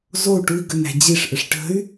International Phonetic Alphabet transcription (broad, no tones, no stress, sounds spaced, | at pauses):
z o u̯ ʈ u i̯ ɡ ə n æ̤ d͡ʑ i ʂ ʔ ə ʂ ʈ ə̤ y̯